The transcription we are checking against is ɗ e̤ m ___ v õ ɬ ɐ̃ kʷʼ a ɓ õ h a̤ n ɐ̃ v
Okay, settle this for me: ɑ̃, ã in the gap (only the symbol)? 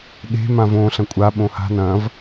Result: ã